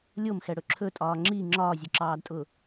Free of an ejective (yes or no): no